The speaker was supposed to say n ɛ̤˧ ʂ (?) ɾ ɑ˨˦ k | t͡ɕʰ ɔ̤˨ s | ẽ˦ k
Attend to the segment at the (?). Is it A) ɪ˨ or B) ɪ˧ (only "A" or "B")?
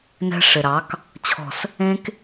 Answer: A